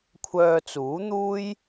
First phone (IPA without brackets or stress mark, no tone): kʷʰ